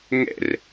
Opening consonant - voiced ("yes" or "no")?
yes